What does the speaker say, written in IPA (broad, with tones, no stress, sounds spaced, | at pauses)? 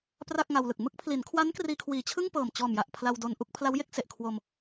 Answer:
p r a˥˩ k̚ ŋ a˧ w l ɯ˨˩ k̚ m ɯ˥˩ k̚ pʰ l i˩˦ n kʰ w a˦˥ n k r iː˧ kʰ w iː˨˩ t͡ɕʰ ɯ˥˩ ŋ p ɤː˨˩ m t͡ɕ ɔː˨˩ m j a˨˩ ʔ pʰ l a˧ w d o˧ n ʔ u˥˩ k̚ pʰ l a˦˥ w j e˥˩ k̚ s e˨˩ ʔ kʰ w o˧ m